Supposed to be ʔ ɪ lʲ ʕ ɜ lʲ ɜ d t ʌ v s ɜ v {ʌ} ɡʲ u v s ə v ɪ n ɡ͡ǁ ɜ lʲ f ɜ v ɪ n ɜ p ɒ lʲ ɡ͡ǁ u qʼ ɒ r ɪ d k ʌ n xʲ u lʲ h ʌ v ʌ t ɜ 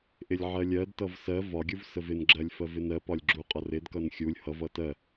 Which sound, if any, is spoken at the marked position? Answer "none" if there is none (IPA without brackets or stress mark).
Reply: ɒ